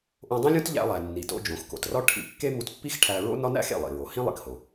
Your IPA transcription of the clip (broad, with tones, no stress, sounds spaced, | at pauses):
ʔ õ˧ dˤ ĩ˥ lʲ õ˥ t ʎ æ̰˧ lˠ æ˩ nː i˩ t o̰˧ d͡ʒ õ˩ x k o̰˩ t r ɒ˥ ʈʰ ḭ˧ kː e˥ m u˧ t pː i˥ x ʈʰ æ˧ ɹ o̰˥ n ɒ˥ n æ̰˥ x ḛ˩ lˠ ḭ˩ ɹ o˩ h ĩ˥ lˠ ḭ˩ k h o˩